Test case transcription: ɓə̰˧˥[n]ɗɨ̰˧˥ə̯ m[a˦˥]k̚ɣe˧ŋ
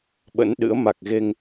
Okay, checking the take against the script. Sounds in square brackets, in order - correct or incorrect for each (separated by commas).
correct, incorrect